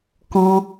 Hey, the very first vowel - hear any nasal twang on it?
yes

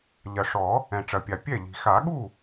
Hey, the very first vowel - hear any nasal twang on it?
no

